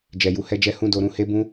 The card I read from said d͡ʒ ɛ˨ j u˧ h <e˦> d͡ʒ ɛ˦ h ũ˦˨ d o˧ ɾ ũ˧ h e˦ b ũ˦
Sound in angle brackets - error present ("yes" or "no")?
yes